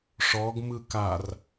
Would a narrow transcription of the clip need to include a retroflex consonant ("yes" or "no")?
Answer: yes